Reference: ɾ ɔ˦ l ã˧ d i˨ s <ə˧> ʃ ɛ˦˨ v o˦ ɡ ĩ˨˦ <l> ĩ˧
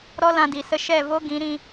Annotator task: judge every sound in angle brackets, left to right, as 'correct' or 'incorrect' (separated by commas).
correct, incorrect